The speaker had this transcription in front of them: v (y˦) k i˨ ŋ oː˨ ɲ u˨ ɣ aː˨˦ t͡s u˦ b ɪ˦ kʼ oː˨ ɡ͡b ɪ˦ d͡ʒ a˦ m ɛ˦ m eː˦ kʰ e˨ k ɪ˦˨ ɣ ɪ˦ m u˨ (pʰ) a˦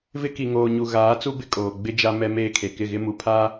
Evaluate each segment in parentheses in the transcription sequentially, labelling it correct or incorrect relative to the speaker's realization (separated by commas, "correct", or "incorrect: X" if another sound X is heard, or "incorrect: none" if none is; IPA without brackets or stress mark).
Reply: incorrect: ɪ˦, correct